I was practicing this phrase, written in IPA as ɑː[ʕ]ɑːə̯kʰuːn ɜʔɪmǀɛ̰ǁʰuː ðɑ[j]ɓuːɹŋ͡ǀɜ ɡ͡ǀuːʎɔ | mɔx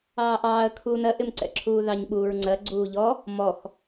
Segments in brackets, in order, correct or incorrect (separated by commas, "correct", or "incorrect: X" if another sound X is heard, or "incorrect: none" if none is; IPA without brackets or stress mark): incorrect: ʔ, incorrect: ɲ